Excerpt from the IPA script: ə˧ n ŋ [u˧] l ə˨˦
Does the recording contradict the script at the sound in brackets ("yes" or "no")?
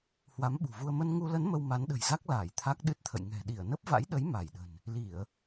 no